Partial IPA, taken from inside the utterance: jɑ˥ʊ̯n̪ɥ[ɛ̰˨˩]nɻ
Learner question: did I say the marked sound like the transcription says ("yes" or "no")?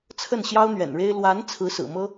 yes